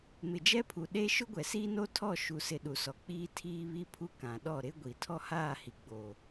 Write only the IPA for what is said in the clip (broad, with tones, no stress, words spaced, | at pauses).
mɪ˨d͡ʒɛ˦pʰu˨ ɗe˦ ʃʊ˦ɡʷɛ˨siː˦no˦ tʰɔ˦˨ʃu˨sɪ˨ ɗu˨sɔ˨ k͡piː˦ tʰiː˦ βi˦pʰu˦kã˨ ɗɔ˦˨ɾɪ˦ɡʷi˨ tʰɔ˦haː˦˨hi˨ ɡ͡boː˨